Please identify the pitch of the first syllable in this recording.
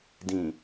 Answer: low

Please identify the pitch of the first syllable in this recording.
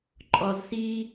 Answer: low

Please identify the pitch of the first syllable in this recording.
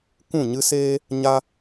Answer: falling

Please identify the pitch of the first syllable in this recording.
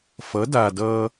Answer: rising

